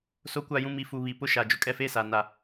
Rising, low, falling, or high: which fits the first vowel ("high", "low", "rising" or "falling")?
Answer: rising